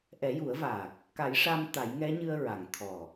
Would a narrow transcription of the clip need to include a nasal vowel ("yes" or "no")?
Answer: no